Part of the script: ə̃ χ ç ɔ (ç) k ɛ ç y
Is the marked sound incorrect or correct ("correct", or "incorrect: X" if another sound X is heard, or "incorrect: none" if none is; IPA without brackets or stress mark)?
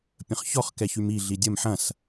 incorrect: χ